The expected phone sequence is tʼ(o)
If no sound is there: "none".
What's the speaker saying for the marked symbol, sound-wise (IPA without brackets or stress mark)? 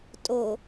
o